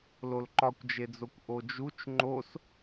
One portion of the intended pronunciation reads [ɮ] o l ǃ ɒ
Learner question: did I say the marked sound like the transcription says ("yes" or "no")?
no